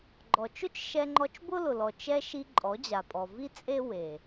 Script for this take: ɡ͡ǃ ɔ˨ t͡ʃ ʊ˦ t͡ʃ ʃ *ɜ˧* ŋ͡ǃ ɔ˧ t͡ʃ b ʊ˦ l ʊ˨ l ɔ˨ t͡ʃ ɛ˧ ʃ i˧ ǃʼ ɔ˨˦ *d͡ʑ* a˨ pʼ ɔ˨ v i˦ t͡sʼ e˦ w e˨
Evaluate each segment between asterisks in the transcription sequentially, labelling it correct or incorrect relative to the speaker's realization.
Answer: incorrect: ɛ˧, correct

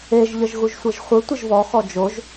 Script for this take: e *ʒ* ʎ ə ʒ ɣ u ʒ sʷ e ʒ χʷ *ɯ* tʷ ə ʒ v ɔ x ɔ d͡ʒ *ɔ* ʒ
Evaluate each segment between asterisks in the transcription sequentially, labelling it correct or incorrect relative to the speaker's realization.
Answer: correct, correct, incorrect: o

